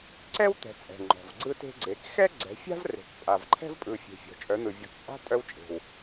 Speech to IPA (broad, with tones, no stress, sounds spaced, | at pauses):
ǀ ɛ˥ w t̪ ɛ̤˨˦ t͡sʼ ɛ̤˨˩ ŋ͡ǃ ɔ̤˨˩ v ɡ͡ǀ ɯ˥ t e̤˥ ɡ͡ǀ e˨˦ k x ɛ˥ ɡ͡ǀ ɛ̤˨˦ fʲ a̤˥ v r e̤˨˩ k pʼ a˨˩ v ǃʰ ɛ̤˥ v pʼ ɯ˨˩ fʲ e̤˨˩ fʲ ɔ̤˨˩ t͡ʃʼ œ˨˦ n̪ ɯ˨˩ vʲ ɔ˨˦ k t͡sʼ a̤˥ tʼ œ˥ w t͡ʃʼ e̤˨˩ w